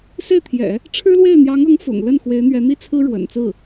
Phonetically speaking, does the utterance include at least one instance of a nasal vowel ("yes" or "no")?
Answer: no